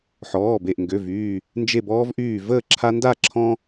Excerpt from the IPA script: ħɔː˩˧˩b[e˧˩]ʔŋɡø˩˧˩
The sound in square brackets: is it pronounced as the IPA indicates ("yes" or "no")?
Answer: yes